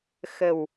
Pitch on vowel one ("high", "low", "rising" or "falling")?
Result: low